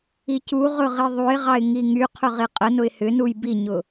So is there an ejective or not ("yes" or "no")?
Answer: yes